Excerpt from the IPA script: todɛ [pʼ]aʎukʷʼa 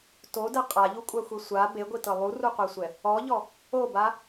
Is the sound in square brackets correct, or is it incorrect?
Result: incorrect